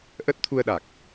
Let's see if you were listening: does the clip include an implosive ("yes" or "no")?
yes